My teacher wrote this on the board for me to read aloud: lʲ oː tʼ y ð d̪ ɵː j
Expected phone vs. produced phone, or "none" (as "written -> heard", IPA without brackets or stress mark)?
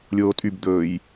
ð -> b